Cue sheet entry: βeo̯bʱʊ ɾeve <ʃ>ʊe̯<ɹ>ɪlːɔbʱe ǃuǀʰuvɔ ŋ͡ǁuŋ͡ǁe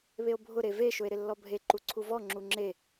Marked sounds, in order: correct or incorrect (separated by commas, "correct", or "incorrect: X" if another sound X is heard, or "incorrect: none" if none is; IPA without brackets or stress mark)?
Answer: correct, incorrect: ɾ